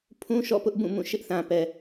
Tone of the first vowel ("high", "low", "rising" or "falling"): high